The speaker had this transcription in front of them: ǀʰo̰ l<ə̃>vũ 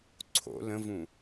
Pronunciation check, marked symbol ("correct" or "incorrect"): correct